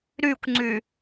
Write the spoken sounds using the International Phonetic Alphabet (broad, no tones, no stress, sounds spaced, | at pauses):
ɾ y kʷ ŋ͡ǀ y